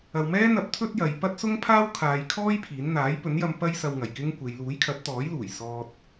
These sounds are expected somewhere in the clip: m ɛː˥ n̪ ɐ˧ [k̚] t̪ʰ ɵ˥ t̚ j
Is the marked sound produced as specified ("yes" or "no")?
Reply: no